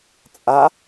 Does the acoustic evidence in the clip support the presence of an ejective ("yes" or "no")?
yes